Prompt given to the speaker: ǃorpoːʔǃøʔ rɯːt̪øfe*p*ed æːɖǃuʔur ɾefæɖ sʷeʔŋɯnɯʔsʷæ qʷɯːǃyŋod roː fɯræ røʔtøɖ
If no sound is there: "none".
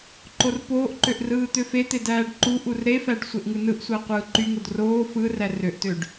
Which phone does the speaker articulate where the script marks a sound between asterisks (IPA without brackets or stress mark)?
t̪